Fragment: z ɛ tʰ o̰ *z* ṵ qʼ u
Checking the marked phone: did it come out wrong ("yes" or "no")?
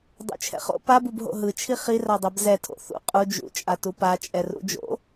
yes